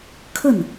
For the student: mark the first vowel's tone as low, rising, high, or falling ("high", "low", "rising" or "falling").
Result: falling